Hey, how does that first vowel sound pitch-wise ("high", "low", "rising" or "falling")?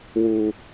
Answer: low